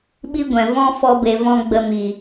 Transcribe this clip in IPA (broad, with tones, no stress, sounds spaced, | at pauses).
ɓ i˦ ɡʷ ɛ̃˨ v ɔ̃˦ f ɔ˧ b e˨ v ɔ̃˧ ɡ͡b ə˧ m i˨